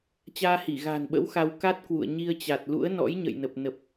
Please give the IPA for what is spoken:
t͡ɕaː˧hi˧˩ɣa̤ː˨˩nɓə̰˧˥w xa˧w ka˦˥t̚kwṵ˧˨ə̯ ɲi˧ə̯t͡ɕa˨˩t̚lṵ˧˥ə̯ nɔ̰˧˥jɲə̰˧˨jnə˨˩p̚ nə˨˩p̚

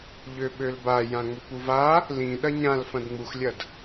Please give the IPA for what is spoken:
ʎøɓølba jãŋ͡møkʷuva | lĩ ɗɐɲãl fɐ̃dŋ͡muxlʲɐd

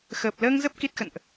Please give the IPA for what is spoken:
xəː˨˩p̚ləː˧ŋzə˦˥p̚ ki˦˥t̚xə̰˧˨nʔ

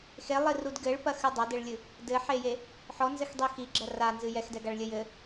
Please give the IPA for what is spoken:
xelˠirud ɡɘɭpɐxɨ dˤadɘɭlʲɨ | dɘħeje | ħɔnzɘxdˤi xiɡ͡ǁɐ ranzɨ jɛxdɛɡaɭlʲɘ jɘ

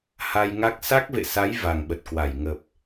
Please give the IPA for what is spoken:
ha˧jŋa˦˥k̚ sa˦˥k̚vḛ˧˨sa˨˦j va˨˩ŋɓə˨˩t̚kwa˧˩j ŋə˨˩p̚

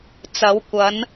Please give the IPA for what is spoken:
t͡sɐ˨˥wkʷɐ˨˥n

